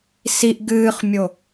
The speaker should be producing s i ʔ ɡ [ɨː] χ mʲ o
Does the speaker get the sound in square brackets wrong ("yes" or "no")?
no